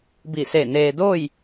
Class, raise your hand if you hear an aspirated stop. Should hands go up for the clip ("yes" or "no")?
no